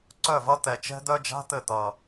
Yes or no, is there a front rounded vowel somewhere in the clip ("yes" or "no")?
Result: yes